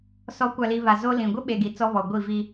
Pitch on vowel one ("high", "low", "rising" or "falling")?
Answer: rising